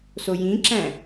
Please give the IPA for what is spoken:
s o j ĩ ǁ æ̃

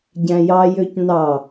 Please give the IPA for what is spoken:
ɟ æ̃ j ɑ j ø c n ɑ

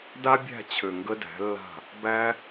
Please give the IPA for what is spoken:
d a˦ bʲ æ̤˦˨ t͡ɕʰ ø˨ ŋ ɡ ə˧ d æ̤˨˦ lː a̤˦˨ | b æ˦

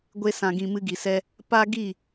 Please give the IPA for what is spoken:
ɡʷ e˦ s ã˧ ɡ ĩ˧ m ɨ˧ ɡ i˨ s ɛ˧ | p a˦ ɡ i˦˨

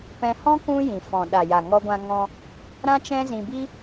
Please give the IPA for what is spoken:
p ɛ̃˧ h ɔ̃˦ k ũ˦ j ĩ˨ f ɔ̃˨ ɗ a˨ j a˨ ŋ ɔ˧ ɡʷ ã˧ ŋ ɔ̃˧ | ɾ ã˦ t͡ʃ ɛ̃˦ z ĩ˧ b i˦

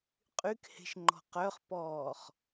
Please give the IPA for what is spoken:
qʼ y k h e̤ ʃ ŋ͡ǃ ɔ̤ q œ χ p ɔː χ

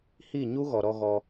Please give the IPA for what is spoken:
h i˦˨ ɲ u˦ ɣ ɔ˨ ɾ ɔ˧ ɣ ɔ˧

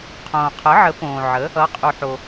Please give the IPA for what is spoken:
qʰ õː˨ qʰ ə˨˥ ʕ ə˨˥ p õː˨ ʕ ə˨˥ | ʌ˨˥ qʼ u˨ ħ o˨

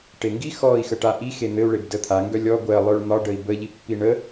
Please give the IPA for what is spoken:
ʈ e ŋ ɡ i x ɔ i̯ x ə ʈ a ʔ i x e n̪ ɘ u̯ ɭ e b d ə t̪ʰ a ŋ ɡ œ lʲ ɔ ɡʷ ɜ lˠ œ ɭ n̪ ɒ ɖ ə i̯ b ə ʎ i pː i ɳ ə

